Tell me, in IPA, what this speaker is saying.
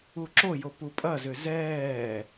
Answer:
u ǁ o j o p u pʼ ɐ z ʏ z ɛː

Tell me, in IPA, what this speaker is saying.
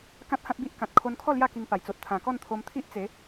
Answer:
k ã˦ t̚ h ã˦ t̚ b i˦ ʔ k ã˨ t̚ kʰ o˧ n kʰ ɔ˥˧ l j a˥˧ k i˧ ŋ p a˨˩ j t͡s o˨ t̚ t̪ʰ ã˨˩ k ɔ˥˧ n t̪ʰ o˧ m t̪ʰ i˦ ʔ t͡s e˨˦

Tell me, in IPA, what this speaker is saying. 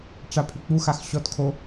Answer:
ʈ͡ʂ a pʰ y k͡p u x a x ɕ ɔ t kʰ o

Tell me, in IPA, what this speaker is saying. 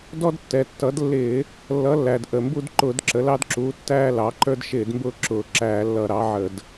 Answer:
d ɔ˦ d tː ɛ˩ tː ʌ˩˥ d lː ɪː˧˩˧ | lː ʌ˩˥ lː æ˩ d ʔ ə˩ m b u˦ d ǃ ʊː˧˩˧ d ǁ ə˩˥ l ɑ˦ d ǁ uː˩˥ tː æː˦ l ɑ˩˥ ǃ ə˞˦ d ʃ ɪː˧˩˧ d m b ʊː˦ ǁ ʊː˧˩˧ ǁ æː˧˩˧ lː ʌ˧˩˧ ɾ ɑ˩˥ ʕ ə˧˩˧ d

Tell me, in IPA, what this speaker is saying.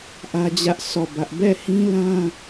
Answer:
ʔ ä˦ d͡ʑ ä˦ ʔ sʰ ɔ˦˨ b ä˦ ʔ b ɛ˦˨ h ĩ˦ l ã˦

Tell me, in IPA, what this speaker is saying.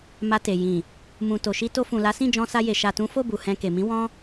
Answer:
m a˧ t e˨ j ĩ˨ | m ũ˨ t o˨ ʃ i˧ t o˧ f ũ˨ l a˨˦ s ĩ˦˨ d͡ʒ ɔ̃˧ s a˧ j e˨ ʃ a˨ t ũ˨˦ f o˦˨ b u˨ h ɛ̃˧ k e˨ m ĩ˨˦ w ɔ̃˦

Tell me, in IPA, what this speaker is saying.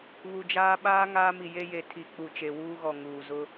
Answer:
β u˨ d͡ʒ aː˦ ɓ aː˦ ŋ aː˦ m i˨ j e˦ j e˨ tʰ i˨ k͡p u˨ t͡ʃ e˨ w uː˦ ɣ ɔ˨ ŋ uː˨ z ʊ˦

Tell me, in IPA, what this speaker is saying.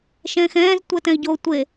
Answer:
ʃ ɛ̃ː x ɛ̃ː z tʷ ɛ t ɛ̃ i̯ ɟ o tʷ e

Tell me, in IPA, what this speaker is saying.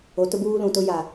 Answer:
o˨˦ t ʊ˦ b uː˦ l ũ˨ t ʊ˦ j a˨

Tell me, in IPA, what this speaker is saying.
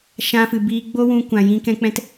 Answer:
ʃ ã˧ f ɨ˨ b iː˧ ɡ͡b o˦ w ũ˧ kʷ ã˨ j ĩ˧ k ɛ̃˦ k͡p ɛ̃˦ t

